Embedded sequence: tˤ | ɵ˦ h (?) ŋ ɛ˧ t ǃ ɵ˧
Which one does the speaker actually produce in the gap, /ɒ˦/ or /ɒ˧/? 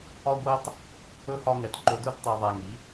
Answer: ɒ˦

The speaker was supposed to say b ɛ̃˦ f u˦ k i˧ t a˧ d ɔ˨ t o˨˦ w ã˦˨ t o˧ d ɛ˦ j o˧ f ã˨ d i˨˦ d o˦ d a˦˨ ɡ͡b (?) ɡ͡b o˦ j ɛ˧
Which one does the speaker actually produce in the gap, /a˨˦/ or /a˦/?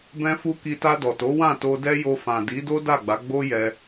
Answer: a˨˦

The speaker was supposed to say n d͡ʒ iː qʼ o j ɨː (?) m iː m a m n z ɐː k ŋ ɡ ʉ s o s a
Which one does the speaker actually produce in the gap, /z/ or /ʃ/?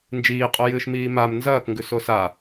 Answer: ʃ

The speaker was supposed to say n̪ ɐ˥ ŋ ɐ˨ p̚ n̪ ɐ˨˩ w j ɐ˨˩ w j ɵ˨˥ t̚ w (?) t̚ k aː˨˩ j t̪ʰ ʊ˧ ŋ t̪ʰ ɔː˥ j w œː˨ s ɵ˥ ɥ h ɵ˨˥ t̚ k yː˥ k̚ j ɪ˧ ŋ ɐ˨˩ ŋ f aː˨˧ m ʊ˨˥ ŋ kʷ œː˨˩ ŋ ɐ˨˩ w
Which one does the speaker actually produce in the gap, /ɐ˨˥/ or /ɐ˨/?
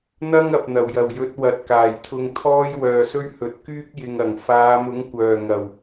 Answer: ɐ˨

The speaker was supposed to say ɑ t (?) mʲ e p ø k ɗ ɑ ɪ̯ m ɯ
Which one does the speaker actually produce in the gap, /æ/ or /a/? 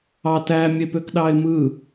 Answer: æ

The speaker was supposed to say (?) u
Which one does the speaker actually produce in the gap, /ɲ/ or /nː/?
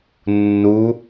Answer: nː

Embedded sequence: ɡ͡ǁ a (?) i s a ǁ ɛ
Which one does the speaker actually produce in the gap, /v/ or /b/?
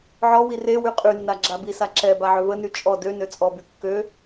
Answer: b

